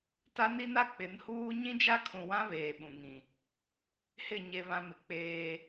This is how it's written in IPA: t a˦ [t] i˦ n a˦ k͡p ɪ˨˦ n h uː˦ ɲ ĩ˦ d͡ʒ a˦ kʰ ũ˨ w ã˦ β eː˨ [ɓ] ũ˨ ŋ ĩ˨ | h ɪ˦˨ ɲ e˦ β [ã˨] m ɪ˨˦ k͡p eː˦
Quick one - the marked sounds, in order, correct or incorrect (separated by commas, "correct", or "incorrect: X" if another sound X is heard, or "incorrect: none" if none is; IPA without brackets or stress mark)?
incorrect: n, correct, incorrect: ã˦